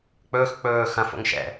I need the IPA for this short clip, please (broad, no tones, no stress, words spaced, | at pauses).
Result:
k͡pɵːx k͡pɵː xɐ̃fo̰ŋ ʃɛ̰